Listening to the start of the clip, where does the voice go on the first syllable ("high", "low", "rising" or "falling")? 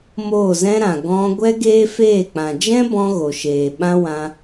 falling